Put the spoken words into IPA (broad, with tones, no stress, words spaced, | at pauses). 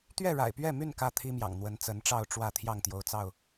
t̪ɥɛ˥˨ɻa̰˨˩ɪ̯pɥɛ˥˨my˥˨n kä˥˨t̪ʰi˦mjɑ̰˨˩ŋn̪wə˨˦n t͡sə˨˦nʈ͡ʂɑ˥˨ʊ̯ʈ͡ʂwä˥˨ t̪ʰjɑ˥˨ŋt̪jo˨˦ʊ̯t͡sɑ˥˨ʊ̯